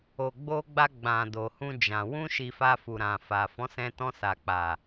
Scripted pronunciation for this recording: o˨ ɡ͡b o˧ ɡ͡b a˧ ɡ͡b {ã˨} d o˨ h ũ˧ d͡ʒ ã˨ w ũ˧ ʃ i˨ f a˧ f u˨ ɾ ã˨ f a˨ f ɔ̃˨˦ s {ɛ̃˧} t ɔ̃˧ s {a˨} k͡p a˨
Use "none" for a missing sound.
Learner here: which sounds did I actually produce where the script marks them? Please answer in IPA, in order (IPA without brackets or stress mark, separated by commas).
ã˨, ɛ̃˧, a˨